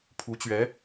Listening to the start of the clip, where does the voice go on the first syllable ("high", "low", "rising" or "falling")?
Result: rising